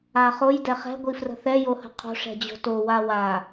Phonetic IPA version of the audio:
a χ o j d ɛ χ ɛ̤ ɡʷ i f r ə̤ θ ɛ j o h ə̤ qʰ o̤ ʂ ɛ̤ d͡ʑ o̤ t o w a w a

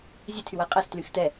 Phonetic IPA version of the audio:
zʲ ɛ tʰ y w æ qʼ æ s t l y x t ɛ

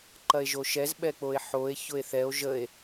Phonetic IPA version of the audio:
ǃ ɐ e̯ ʒ o ʃ ɛ z ɓ ɛ k͡p o e̯ ħ o e̯ ç ʊ e̯ θ ɛ o̯ ʒ ə e̯

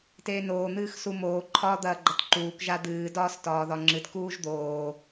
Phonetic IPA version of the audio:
t eː n oː n̪ ɨː x s u m oː ǃʰ ɒː d̪ ɐː ɡ͡ǃ ɐ t ǃ uː k ʒ a d̪ ɨː d ɒː s t ɒː ð ɒ ŋ͡ǁ ɨ t k uː ʒ d̪ oː

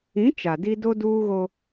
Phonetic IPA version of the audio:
ĩ˨˦ t͡ʃ a˨ d i˦ d o˦ d uː˦ ɣ o˦

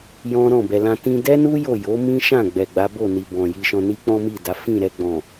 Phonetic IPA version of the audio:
j ɔ̃˦ ɾ ɔ̃˦˨ b ɛ˨ l ã˧ t ĩ˧ d ɛ˦ n u˦ j o˦˨ j o˨˦ m ĩ˦ ʃ ã˦˨ ɡ͡b ɛ˨ ɡ͡b a˨˦ b o˦˨ n i˨ b ɔ̃˨ j i˧ ʃ ɔ̃˧ n i˦ k͡p ɔ̃˦ m i˦˨ d a˨˦ f ĩ˦˨ ɾ ɛ˧ ɡ͡b ɔ̃˨

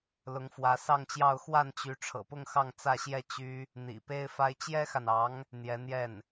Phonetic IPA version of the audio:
l ʊ˧˥ ŋ f w ä˧˥ s ɑ˥˧ ŋ t͡ɕ j ɑ˥˧ ʊ̯ x w a˥˩ n t͡ɕ y˧˥ ʈ͡ʂʰ ɤ̰˨˩ p ʊ˥˧ ŋ x ɑ˥˧ ŋ t͡s ä˥˧ ɕ j ɛ˥˩ t͡ɕ y˥ | n̪ ḭ˨˩ p e˥ ɪ̯ f a˥ ɪ̯ t͡ɕ j ɛ˥ x a˨ n ɑ˧˥ ŋ | n̪ j ɛ˧˥ n̪ j ɛ˥˩ n

